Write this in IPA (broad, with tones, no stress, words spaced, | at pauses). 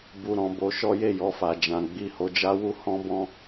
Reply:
bu˨ ɾɔ̃˨ bo˨˦ ʃɔ˦je˦˨ jɔ˧fa˨ d͡ʒã˨ ɡ͡bi˧ho˧ d͡ʒa˦wu˦ hɔ̃˦bɔ̃˦